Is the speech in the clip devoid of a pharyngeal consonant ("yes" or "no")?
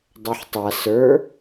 no